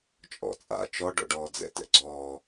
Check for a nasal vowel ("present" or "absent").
absent